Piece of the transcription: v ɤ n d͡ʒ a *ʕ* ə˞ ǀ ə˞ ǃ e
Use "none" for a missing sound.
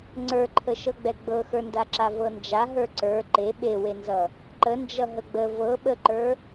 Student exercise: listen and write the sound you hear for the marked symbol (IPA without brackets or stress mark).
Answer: ɦ